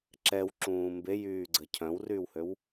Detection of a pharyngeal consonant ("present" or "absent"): absent